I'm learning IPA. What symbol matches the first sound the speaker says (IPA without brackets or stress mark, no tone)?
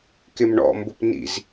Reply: k